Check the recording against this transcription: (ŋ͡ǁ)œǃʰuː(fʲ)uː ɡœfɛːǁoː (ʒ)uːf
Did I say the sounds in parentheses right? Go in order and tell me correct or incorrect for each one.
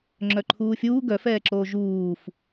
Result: correct, correct, correct

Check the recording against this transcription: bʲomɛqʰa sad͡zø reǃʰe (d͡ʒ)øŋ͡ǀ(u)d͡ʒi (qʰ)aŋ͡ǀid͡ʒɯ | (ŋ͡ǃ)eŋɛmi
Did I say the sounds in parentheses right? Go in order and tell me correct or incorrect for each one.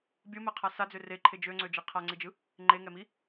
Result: correct, incorrect, correct, correct

